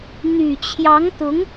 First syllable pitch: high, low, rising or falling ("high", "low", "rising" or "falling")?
low